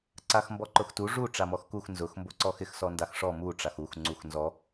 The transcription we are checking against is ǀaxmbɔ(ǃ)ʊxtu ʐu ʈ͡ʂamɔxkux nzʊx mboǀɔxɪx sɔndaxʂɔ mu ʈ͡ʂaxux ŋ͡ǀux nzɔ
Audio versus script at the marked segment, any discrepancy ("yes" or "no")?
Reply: no